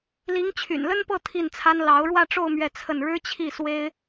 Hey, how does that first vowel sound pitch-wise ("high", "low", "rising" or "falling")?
rising